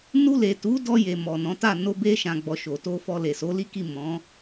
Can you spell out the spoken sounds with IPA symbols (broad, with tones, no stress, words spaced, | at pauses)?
nu˧le˨tu˨˦ dɔ˧je˨ mɔ˨nɔ̃˨˦ta˦˨ no˧ be˧ʃã˨ɡ͡bɔ˨ ʃo˨to˧fɔ˧ le˨so˨˦li˦ki˦˨ mɔ̃˨˦